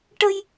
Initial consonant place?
retroflex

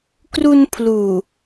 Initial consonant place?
velar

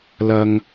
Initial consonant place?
alveolar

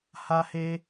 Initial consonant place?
glottal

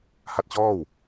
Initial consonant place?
glottal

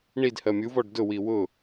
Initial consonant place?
retroflex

